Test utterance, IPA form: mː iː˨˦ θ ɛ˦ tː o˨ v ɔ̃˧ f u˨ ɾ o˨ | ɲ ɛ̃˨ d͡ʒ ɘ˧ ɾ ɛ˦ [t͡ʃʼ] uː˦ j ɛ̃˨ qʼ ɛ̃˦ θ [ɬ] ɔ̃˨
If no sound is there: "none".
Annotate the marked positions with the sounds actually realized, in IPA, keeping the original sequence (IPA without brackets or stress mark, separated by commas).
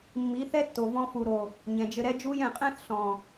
d͡ʒ, ɬ